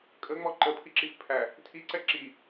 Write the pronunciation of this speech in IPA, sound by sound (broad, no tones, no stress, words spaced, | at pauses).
kʼəŋ͡mɔ ǃəpʰiǁif pʰæ | tʰiǀɛ ǁi